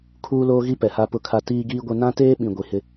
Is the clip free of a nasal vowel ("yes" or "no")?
no